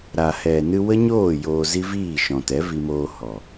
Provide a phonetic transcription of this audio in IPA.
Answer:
ɾ a˨ h ɛ˨ n ɨ˧ w ə˦ ɲ oː˦˨ j oː˧ z i˦ v iː˦˨ ʃ ɔ̃˨ t ɛ˨˦ v i˧ m oː˧ h ɔ˨

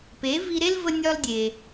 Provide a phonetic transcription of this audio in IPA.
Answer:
p e˩˥ v i˧ ɾ e˥ l v ə˥ nʲ ɒ˥ l dʲ e˩

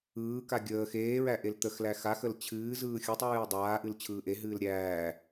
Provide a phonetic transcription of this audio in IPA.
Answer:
ɯː k a ɡʲ əː x eː ɹ æ ʔ e l t̪ ə x l æ x a x ə l t͡ɕʰ ɨː z ɯː xʲ ɯ tˤ ɹ ɨː dˤ aː ʔ ɨ l t͡ɕʰ ɯː ʔ e ɦ ɨː l ɾʲ æː

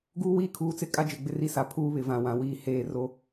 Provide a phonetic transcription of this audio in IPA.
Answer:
ɡ uː˦ w iː˦ kʰ uː˨˦ t͡s ɪ˦˨ kʼ a˦ d͡ʒ ɪ˨ ɡ͡b ɪ˦ r i˦ s a˨ pʰ uː˦ β ɪ˨ v ã˨ w ã˨ w iː˨ h eː˦˨ r o˦

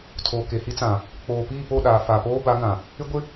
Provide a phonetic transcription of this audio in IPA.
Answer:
tʰ oː˨ k e˨ h i˦ t͡s ã˨ | k͡p oː˨ p iː˦˨ p o˦˨ ɗ aː˨ f a˨ p oː˦ b a˨˦ ŋ ã˨ | ɪ˦ ɡʷ ɪ˦

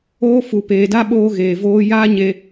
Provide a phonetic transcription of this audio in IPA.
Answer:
oː˦ f u˨ p eː˨ d a˦ ɓ oː˦ ɣ eː˨ v oː˦ j aː˦ ɲ e˨

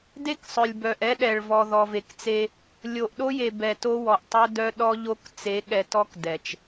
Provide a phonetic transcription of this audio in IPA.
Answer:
d e˦ k sˤ œ˨ lʲ b œ˨ ʔ ɛ˦ ɗ ɛ˨ ɭ v ɔ˨ ð ɔ˨ v e˨ k t͡s e˦ | lʲ o˨ ʔ ɗ o˦ j e˨ b ɛ˨ t o˦ w ɔ˨ ʔ tˤ œ˦ d œ˦ ɗ ɔ˦ ʎ o˦ k t͡s e˨˦ ɠ ɛ˨ t ɔ˦ k d ɛ˨ t͡ʃ

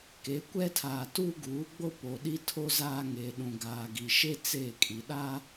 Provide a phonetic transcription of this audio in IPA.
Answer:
k e˨˦ kʷ ɛ˦ tʰ aː˨ t uː˦ ɡ uː˨˦ ɡ͡b o˦ p o˨ ɗ i˦ tʰ o˦ z aː˦ ŋ eː˨ ɗ ũ˨ ɡ aː˨ ɡ i˨ ʃ e˦ t͡s e˦˨ kʼ i˨ ɗ a˦

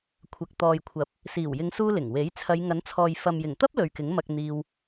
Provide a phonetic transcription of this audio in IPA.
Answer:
kʷʰ ɐ˨ k̚ t̪ ɔː˨ j kʷʰ ɐ˨˥ p̚ | s iː˨˩ w j ɪ˨˧ ŋ s uː˧ l ɪ˨˩ ŋ w e˨˥ j t͡sʰ ɐ˨˧ j ŋ ɐ˨˥ n t͡sʰ ɔː˨ j f ɐ˨ m j ɪ˨˩ ŋ t̪ ɐ˥ p̚ l ɵ˨ ɥ k ɪ˨˥ ŋ m ɐ˧ k̚ n̪ iː˧ w

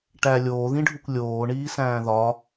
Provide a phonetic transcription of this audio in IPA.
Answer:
ʈ æ lʲ oː ð ĩ ɖʱ u kʷ lʲ oː ɳ iː s æ̃ː ð ɒ

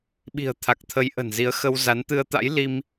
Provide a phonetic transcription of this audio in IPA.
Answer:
ɓ i̤˨˩ ə̯ t̪ʰ a˨˩ k̚ t̪ʰ ə˨˦ j ʔ ə̤˨˩ n z i˨˦ ə̯ x ə˧ w z a˨˦ n t̪ ɨ˧ ə̯ t̪ a̰˧˥ j l i˧ m

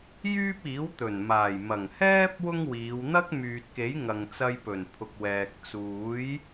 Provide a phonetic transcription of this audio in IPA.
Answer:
j yː˥ p̚ iː˨˥ w t̪ ɵ˨˩ n m aː˨˩ j m ɐ˨˩ ŋ h ɛː˥ p̚ w ʊ˥ ŋ w iː˨˧ w n̪ ɐ˥ k̚ m yː˨ t̚ k e˨˥ j ŋ ɐ˨ ŋ t͡s ɐ˧ j p ɵ˨˩ n pʰ ʊ˨ k̚ w ɛː˨ k̚ t͡s uː˨˥ j

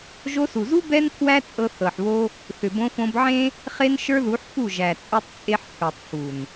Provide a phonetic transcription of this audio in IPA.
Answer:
ʒ o˧ s u˨ z u˦ b ɛ˦ n pʰ w æ˦ t͡sʼ ɤ˧ θ ɤ˨ ħ β o˦ | θ ʏ˨ b õ˧ f õ˧ b ʕ ẽ˦ | χ e˦ n ʃ ə˞˦ ð u˨˦ ħ f u˦˨ ʒ æ˨ t͡sʼ u˧ tˤ t͡sʼ e˧ ħ pʰ ə˞˨ tˤ f u˨ n

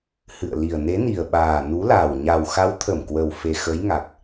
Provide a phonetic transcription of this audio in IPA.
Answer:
h ɨ̰˧˨ ə̯ l i˨˩ ə̯ n e˨˦ n i˨˩ ə̯ ɓ aː˨˩ n u˨˦ l a˨˩ w ɲ a˨˩ w x a˨˦ w t̪ʰ ə˧˩ m k w ə˨˩ w f e˨˩ x ə˨˦ j ŋ a˨˩ k̚

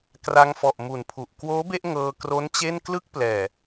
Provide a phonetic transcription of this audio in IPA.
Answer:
k r a˧ ŋ f ɔ˨˩ ʔ m u˨˩ n pʰ u˨˩ ʔ k w oː˦˥ b e˥˩ ʔ ŋ ɤː˧ k r o˦˥ n t͡ɕ e˥˩ n k l ɯ˥˩ k̚ p l ɛː˨˩

